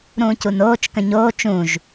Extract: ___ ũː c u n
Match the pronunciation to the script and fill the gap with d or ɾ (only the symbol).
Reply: ɾ